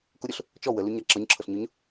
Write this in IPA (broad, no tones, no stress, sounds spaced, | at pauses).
k ʊ ɾʲ ʊ ɬ | t͡ʃ ɔ w ə l u ɲ a ǁ ɤ ɲ ǁʰ ɤ ɬ ɲ ʊ ɲ